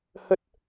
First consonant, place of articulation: glottal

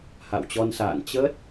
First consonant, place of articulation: glottal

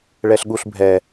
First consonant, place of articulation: retroflex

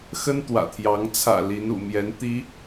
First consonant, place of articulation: velar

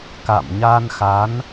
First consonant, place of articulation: velar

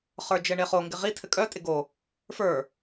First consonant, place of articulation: uvular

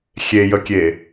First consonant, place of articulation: velar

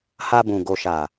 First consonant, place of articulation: glottal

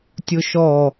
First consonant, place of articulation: alveolar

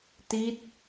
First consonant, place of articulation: alveolar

